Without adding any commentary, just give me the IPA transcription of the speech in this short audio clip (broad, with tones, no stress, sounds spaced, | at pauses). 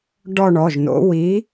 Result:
ɖ ɔ˥˧ ɳ ɔ˩˧˩ ʒ n o̰˨˥ w i˨˥